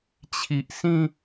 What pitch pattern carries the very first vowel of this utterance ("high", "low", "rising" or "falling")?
low